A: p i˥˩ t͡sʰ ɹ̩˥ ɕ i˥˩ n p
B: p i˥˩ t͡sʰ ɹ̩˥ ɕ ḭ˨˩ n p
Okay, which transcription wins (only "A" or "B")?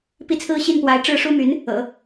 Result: A